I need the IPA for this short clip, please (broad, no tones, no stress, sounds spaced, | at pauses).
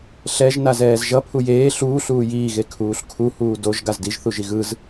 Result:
ɬ ɛ ʒ n a z ɛː z ʒ ʌ pʰ u j eː ɬ uː ɬ uː j iː ɣ e kʰ uː ɬ kʰ u h uː d o ʒ ɡ a z d i ʒ θ u ʒ i ɣ ɯ z